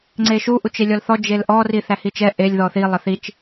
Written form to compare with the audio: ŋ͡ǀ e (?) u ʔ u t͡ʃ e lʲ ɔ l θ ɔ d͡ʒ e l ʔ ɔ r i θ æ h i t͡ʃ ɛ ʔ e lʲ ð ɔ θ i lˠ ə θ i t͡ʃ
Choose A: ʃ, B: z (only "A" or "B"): A